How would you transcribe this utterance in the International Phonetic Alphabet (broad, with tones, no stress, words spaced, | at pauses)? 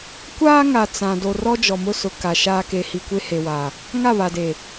kʷaː˦ŋa˨ t͡sã˨ do˨rɔ˦d͡ʒɔ˨ mʊ˦sʊ˨ ka˨ ʃaː˦ ke˨hi˨ kʷe˦he˨wa˨ | ŋa˦˨βa˨de˨